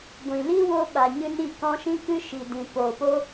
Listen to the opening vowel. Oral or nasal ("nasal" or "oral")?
nasal